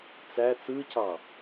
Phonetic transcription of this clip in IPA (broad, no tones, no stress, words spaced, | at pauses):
t͡sæ t͡sɯcɑ